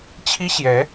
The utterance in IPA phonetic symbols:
t͡ɕʰ i˥ ɕ j ɛ˧˥

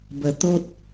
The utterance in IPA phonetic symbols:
b ə˧ t̪ o˦ t̚

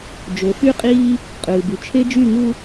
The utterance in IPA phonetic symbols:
d͡ʒ o˨ f y˦ qʼ iː˦ | qʼ ɯː˨ b y˨ t͡ʃʰ e˦ d͡ʒ y˦˨ ŋ u˦

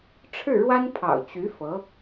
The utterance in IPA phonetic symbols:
ʈ͡ʂʰ ɻ̩˥˩ ɻ w a˥ n pʰ ɑ̰˨˩ ʊ̯ t͡ɕ y˧˥ f ɤ˧˥

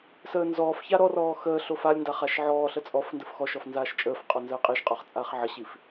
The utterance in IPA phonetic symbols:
s əː n z ɔː f ç a ɾ ɔ r ɔː x əː ɬ o f a lʲ n d a χ a ʃ ʕ ɔː ɬ ə t͡sʼ ɔ f n d ə f x ɔ ʃ ɔ f n z aː ʃ t͡ʃʼ əː f qʼ ɔ n z əː qʼ i ʃ qʼ ɒ χ t͡sʼ aː χ ʕ ə ɕ i f

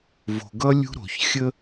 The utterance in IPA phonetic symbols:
v o̤˨ ɡ ʌ˦ lʲ ṳ˦ ɾ o̤˨ ç xʲ ə˦

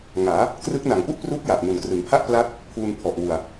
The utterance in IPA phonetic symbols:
ŋ aː˩˦ | k r ɯ˦˥ k̚ n a˨˩ ŋ p u˥˩ ʔ p r uː˦˥ k̚ j a˨˩ ʔ n u˨˩ n k r ɯ˩˦ ŋ pʰ a˥˩ ʔ p l a˦˥ t̚ | pʰ uː˧ n pʰ ɔ˨˩ ʔ w u˨˩ a̯

